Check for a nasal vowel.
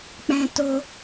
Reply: present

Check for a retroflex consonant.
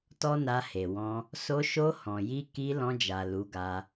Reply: absent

